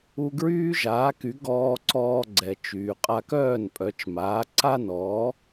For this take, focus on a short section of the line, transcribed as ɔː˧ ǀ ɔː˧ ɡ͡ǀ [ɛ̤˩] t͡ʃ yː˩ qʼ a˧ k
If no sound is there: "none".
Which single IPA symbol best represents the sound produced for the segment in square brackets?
ɛ˩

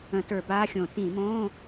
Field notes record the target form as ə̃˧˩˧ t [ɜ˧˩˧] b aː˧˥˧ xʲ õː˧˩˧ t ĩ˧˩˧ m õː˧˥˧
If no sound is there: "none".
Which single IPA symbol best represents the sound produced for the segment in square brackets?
ə˞˧˩˧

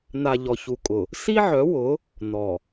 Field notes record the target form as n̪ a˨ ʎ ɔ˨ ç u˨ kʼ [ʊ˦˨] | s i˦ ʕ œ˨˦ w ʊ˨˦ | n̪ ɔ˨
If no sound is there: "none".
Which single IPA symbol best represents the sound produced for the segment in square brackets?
ʊ˨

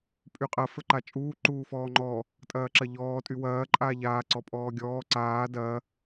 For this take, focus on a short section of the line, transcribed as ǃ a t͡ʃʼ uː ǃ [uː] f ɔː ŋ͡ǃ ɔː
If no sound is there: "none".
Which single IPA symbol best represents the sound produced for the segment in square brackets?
uː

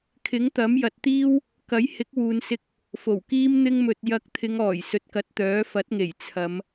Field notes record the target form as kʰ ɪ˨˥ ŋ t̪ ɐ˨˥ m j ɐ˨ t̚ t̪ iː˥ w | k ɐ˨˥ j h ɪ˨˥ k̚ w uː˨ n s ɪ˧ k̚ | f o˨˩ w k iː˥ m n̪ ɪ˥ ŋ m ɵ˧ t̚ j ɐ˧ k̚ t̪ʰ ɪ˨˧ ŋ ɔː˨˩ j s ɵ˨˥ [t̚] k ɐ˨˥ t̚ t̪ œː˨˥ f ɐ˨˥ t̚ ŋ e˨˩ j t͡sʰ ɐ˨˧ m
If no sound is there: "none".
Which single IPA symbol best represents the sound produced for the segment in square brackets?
t̚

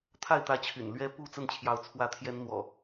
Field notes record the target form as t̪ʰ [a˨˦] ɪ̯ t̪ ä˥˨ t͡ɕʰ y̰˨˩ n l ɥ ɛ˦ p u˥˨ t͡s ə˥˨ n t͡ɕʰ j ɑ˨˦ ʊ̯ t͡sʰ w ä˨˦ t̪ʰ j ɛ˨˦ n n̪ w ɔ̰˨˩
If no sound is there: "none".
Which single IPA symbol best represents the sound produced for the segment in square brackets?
a˥˨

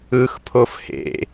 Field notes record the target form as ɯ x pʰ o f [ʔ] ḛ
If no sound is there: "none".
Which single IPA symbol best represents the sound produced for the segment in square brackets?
h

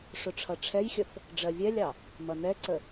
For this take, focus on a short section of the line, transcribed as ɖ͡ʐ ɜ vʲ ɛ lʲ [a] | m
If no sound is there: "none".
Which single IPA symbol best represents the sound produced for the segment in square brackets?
ɑ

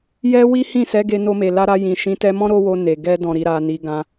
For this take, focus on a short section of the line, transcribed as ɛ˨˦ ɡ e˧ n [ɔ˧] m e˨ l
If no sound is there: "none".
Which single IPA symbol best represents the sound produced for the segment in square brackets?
o˧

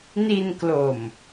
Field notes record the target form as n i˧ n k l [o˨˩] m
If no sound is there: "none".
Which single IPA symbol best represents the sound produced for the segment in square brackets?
o˨˩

